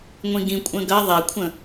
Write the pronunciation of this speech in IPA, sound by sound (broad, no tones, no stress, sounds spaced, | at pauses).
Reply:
ŋʷ ĩ ɡ ĩ kʷʼ ə̃ ɡ ɐ ðˤ ɛ kʷʰ ə̃